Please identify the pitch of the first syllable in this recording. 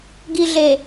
low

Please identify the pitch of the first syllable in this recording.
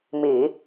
low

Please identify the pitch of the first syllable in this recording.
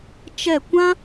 falling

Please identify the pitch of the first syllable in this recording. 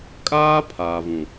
high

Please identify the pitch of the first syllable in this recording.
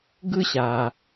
high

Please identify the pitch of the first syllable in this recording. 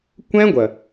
high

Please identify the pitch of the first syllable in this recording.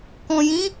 low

